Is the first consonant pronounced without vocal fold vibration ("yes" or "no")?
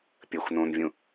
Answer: yes